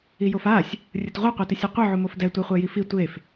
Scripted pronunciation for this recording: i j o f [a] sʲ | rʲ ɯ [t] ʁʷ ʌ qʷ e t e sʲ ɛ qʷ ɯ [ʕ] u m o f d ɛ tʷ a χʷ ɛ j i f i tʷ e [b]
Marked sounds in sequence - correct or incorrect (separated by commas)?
correct, correct, correct, incorrect